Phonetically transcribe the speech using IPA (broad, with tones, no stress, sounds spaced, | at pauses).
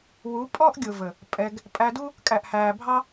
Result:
w u˨˦ pʼ ɔ˦ ʔ ɡʲ ʊ˨ v ə˨ | pʼ ɛ˧ ɡ | pʼ æ˧ d u˦ | kʼ æ˨ ʔ h æː˨ bʱ ɑ˦